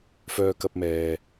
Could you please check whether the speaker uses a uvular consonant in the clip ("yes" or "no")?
no